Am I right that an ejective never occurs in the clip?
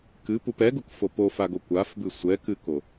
yes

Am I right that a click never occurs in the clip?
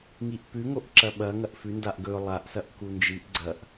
no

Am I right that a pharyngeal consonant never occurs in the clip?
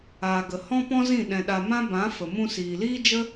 yes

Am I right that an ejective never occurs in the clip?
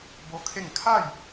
yes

